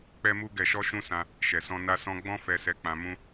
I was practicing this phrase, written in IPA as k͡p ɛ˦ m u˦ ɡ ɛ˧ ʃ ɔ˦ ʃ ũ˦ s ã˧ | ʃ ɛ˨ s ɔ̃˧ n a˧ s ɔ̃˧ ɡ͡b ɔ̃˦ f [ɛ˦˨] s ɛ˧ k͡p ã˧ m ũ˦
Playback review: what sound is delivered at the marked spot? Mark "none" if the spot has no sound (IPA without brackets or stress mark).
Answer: ɛ˧